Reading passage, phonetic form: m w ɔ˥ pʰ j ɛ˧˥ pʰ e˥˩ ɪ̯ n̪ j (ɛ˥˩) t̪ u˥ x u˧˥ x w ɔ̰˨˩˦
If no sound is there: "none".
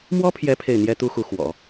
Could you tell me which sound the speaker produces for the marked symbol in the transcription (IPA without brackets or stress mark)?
ɛ˥